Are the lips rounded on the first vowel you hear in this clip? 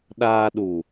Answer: no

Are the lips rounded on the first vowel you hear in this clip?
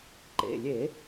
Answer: no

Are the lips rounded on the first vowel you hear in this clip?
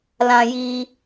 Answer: no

